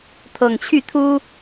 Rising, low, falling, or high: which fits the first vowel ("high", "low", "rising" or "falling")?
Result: low